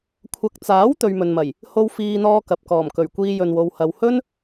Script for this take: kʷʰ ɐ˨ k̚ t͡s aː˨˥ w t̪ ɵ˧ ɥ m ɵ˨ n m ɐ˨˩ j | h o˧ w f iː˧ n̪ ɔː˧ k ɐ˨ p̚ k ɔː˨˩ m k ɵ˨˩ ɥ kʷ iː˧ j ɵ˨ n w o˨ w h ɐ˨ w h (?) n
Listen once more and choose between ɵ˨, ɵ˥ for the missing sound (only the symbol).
ɵ˥